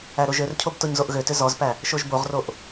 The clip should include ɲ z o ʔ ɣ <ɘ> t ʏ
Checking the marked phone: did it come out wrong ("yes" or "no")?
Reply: yes